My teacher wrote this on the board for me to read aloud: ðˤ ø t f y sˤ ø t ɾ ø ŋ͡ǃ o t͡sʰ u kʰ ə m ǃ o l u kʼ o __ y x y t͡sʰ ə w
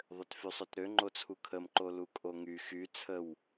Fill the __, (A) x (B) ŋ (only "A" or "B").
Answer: B